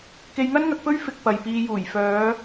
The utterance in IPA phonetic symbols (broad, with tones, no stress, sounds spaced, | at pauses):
k e˧ j ŋ ɐ˥ n ŋ ɐ˧ k̚ p ɵ˥ ɥ f ɪ˧ k̚ p ɐ˨ j p iː˨ j uː˨˩ j f œː˨˧